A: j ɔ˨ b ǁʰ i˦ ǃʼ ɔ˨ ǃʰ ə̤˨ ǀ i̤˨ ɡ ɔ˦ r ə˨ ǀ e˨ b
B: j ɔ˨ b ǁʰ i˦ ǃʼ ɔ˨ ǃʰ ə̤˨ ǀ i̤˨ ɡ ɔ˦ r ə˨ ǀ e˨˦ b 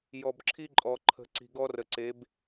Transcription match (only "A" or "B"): B